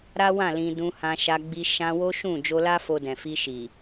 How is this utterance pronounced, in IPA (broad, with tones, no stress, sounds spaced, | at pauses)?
ɾ a˦ w ã˦˨ l ĩ˧ d ũ˧ h ã˧ ʃ a˧ ɡ͡b i˧ ʃ ã˧ w o˦ ʃ ũ˦˨ d͡ʒ o˧ l a˦ f o˧ d ɛ̃˨ f i˧ ʃ i˨